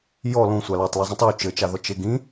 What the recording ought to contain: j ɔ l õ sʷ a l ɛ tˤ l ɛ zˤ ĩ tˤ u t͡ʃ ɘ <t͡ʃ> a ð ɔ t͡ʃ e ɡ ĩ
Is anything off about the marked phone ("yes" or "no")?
no